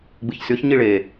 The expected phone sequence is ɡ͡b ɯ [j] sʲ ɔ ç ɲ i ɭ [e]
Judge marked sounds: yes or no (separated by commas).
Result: no, yes